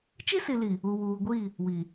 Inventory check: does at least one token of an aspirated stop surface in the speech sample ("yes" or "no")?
no